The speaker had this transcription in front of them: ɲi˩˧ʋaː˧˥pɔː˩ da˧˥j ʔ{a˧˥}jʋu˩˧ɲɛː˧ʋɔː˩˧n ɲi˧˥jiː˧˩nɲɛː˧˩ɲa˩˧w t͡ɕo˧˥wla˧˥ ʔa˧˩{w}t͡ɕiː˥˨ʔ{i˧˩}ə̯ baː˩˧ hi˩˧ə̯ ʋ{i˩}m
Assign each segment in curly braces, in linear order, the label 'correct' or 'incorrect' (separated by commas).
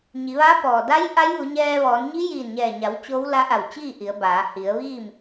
correct, correct, incorrect, incorrect